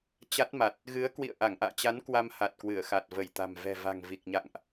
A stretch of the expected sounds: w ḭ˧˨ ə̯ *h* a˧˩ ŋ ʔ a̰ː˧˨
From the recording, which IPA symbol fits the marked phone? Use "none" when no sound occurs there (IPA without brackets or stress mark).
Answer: ʔ